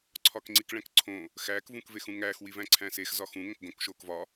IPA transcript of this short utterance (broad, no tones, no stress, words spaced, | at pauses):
ǀʰɒkŋ͡ǀikɭæ̃kǀʰõ | xæːkvũkvex ũŋæːxwivæ̃ ǀʰæ̃sexzɒ xũŋõk ɡõk ʃoːkvɒ